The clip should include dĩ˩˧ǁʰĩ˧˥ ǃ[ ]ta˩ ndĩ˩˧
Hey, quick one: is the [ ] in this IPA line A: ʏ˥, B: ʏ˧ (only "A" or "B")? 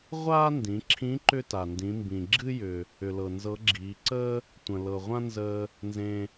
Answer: A